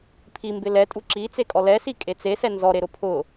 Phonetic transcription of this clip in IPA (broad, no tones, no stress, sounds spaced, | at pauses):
pʰ i m b ɪ l ɛ tʼ u ǁ i t͡s e kʼ ɔ l ɛ s i kʼ e t͡s e s ɛ n z ɔ ɾ e ɾ ʊ pʰ ʊ